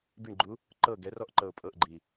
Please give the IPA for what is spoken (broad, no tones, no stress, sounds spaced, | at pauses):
b i ɳ ɡ͡ǃ u | ǃ ɤ ɡ ɛ r ɔ ʔ ǃ ɤ ʊ̯ pʼ ɤ ʔ ɡ͡ǃ i